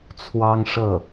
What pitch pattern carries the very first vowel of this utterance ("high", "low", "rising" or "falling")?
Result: high